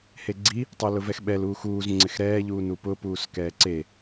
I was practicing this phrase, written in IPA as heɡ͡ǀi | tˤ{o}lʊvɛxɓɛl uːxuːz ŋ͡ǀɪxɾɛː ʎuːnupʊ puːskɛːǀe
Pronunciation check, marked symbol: correct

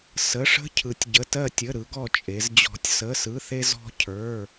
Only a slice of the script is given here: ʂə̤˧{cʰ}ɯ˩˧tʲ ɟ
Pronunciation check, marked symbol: correct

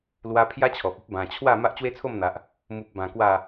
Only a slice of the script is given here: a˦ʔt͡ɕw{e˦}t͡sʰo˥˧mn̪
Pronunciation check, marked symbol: correct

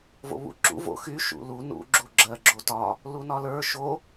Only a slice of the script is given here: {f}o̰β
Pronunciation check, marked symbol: incorrect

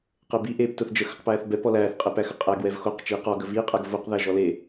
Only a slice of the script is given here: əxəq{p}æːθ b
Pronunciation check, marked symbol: correct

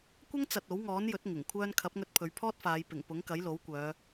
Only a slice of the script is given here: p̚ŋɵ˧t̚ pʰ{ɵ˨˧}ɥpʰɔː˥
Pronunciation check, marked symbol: correct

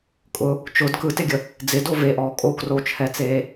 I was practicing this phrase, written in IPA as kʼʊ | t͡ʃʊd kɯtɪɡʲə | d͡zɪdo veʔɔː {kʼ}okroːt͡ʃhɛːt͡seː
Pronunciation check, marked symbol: correct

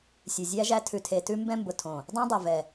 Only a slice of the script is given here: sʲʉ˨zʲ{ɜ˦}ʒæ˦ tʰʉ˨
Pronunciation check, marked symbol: incorrect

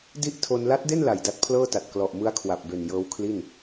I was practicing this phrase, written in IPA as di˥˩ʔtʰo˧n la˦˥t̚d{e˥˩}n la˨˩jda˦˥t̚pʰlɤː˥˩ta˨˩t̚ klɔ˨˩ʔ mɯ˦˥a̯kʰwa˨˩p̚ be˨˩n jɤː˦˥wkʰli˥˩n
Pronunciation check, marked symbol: correct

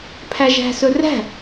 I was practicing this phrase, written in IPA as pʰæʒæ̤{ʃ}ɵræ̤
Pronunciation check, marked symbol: incorrect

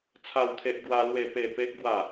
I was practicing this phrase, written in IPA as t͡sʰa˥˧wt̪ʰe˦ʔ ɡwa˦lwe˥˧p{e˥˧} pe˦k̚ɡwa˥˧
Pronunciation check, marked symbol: correct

